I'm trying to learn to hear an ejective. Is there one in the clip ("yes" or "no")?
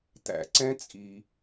yes